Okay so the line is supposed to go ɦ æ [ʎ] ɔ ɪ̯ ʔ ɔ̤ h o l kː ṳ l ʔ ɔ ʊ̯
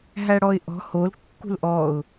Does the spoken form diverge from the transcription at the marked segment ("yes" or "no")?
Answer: yes